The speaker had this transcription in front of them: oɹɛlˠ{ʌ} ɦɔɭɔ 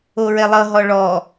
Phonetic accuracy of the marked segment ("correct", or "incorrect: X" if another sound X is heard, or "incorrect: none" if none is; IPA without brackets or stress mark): correct